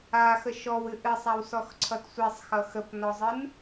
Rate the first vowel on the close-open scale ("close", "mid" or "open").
open